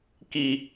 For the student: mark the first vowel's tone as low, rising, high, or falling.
high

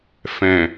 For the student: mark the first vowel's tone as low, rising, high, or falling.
low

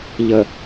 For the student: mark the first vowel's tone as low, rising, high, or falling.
low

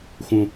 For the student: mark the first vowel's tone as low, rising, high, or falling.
low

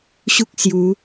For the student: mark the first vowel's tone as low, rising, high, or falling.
high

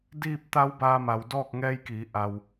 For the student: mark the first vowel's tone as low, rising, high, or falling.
falling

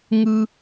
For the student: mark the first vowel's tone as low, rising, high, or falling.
high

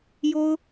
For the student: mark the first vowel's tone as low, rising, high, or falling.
high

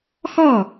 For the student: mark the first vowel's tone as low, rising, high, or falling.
falling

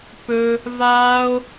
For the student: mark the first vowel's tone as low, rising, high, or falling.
high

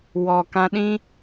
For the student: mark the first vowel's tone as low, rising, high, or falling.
low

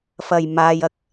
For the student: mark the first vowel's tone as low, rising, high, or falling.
low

